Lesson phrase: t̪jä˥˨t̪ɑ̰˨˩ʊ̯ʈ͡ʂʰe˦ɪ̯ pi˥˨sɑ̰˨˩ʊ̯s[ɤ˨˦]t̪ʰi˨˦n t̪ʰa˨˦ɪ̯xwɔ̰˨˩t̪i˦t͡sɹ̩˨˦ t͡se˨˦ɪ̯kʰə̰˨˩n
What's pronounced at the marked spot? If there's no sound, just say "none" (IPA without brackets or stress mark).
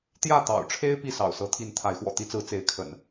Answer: ɤ˨˦